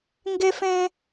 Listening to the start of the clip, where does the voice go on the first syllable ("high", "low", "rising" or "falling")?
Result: high